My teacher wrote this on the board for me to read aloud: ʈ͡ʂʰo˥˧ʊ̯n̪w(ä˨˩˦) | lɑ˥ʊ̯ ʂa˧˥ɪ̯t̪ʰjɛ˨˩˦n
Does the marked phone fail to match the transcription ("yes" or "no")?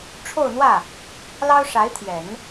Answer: yes